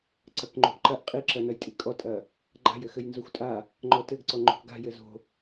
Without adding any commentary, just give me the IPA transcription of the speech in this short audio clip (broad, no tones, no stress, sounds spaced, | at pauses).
ǀ ɐ k ŋ͡ǃ o̤ ʔ ǃ ɐ ʔ qʼ i ǁ ɐ n ɐ j tʼ i kʼ ɔ tʼ ɐ | ɡ͡ǃ a̤ j ɘ x ɘ j n z o xʷ tʼ a | ŋ͡ǃ ɔ t ɘ ɡ ǀ ɔ ŋ͡ǃ o̤ k ɡ a̤ j ɘ z o̤